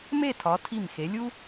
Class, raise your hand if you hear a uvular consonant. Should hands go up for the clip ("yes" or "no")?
no